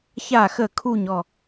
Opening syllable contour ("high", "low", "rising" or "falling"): falling